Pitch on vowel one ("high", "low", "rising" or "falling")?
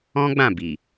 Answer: high